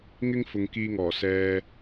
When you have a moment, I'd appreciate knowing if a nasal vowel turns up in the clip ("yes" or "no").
no